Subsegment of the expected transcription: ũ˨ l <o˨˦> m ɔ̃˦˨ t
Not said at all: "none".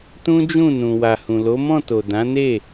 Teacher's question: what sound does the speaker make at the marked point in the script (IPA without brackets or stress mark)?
o˨˦